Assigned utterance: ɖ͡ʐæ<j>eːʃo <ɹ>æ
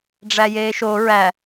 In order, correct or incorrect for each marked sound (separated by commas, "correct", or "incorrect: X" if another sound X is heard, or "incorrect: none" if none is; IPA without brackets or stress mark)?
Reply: correct, correct